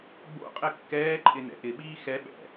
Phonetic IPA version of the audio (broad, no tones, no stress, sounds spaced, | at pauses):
ɡ͡b o̰ qʼ ɘ kː ɛː ǃʼ ɪ n ɛ̰ ʔ ɪ ɓ iː x ɛ ɓ ɛ̰